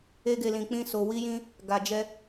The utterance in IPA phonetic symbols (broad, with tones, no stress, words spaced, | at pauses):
e˧ɡe˨lĩ˨k͡pĩ˧ so˨ wi˧jĩ˧ | ɡa˨d͡ʒɛ˧